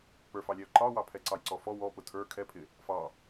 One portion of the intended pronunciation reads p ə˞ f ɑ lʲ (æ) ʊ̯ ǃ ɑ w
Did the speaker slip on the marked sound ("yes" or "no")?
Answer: no